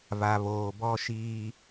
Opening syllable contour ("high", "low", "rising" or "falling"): low